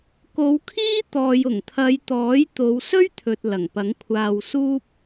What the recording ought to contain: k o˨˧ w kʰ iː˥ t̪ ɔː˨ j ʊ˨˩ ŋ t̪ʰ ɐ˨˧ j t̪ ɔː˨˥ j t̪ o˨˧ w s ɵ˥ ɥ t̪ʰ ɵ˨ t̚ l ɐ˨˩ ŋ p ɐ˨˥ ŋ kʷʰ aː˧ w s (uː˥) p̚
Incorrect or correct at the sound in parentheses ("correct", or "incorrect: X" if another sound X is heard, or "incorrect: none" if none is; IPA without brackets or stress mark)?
correct